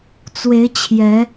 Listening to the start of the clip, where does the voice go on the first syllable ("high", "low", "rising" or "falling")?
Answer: rising